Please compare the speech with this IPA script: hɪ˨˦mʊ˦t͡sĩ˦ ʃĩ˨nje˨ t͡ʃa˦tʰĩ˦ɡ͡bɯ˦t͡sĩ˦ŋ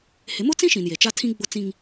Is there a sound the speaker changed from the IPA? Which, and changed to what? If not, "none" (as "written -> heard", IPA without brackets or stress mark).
ɯ˦ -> ʊ˦